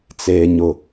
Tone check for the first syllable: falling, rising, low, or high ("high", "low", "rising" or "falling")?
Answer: low